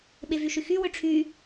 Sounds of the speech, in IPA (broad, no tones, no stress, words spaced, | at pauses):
ɓevyʃyxy wʏʈ͡ʂʰy